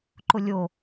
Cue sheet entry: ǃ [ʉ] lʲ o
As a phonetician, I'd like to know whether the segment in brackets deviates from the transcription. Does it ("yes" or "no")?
yes